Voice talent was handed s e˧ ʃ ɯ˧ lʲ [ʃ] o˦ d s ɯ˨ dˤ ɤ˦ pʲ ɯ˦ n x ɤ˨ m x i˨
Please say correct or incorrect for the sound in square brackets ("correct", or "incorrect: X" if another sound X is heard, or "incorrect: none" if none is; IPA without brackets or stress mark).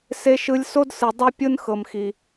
incorrect: s